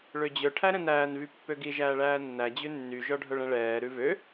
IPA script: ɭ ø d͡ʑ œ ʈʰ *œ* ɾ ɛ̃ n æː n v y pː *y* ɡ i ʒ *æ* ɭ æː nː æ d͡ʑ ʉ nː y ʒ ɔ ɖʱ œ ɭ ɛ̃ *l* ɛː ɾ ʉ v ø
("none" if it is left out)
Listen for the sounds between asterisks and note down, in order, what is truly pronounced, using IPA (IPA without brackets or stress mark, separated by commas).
æ, ø, æː, ɭ